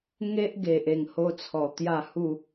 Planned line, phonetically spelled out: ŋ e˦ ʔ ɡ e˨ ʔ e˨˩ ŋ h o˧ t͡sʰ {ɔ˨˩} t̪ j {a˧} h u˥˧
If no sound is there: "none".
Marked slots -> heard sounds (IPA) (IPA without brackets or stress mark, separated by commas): ɔ˨˩, a˥˧